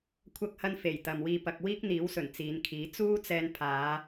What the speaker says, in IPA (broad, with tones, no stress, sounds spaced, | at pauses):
kʷʰ ɐ˥ k̚ h ɐ˥ n f e˨˩ j t̪ ɐ˨ m w iː˧ p ɐ˧ k̚ w iː˥ k̚ n̪ iː˨˥ w s ɵ˨˩ n t͡s iː˨˧ n kʰ iː˨˥ t͡s uː˥ t͡s ɛː˧ n pʰ aː˨˧